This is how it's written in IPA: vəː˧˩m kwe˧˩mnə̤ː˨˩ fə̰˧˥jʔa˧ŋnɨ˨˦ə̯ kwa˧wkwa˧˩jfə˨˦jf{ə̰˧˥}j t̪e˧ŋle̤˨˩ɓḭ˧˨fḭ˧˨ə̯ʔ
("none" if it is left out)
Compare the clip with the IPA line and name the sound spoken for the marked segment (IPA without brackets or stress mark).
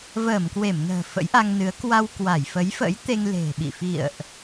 ə̰˧˥